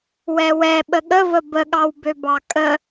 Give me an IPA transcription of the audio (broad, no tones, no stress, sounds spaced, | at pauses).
w ɛ w ɛ ɓ ə ɠ ə v ə b ə ɠ ɑ w b ø b ɑ kʼ ə